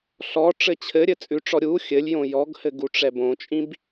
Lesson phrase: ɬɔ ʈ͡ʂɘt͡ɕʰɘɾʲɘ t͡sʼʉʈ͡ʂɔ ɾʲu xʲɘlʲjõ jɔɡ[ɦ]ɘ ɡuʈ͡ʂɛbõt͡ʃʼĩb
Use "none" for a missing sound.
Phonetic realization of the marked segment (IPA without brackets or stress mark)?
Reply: h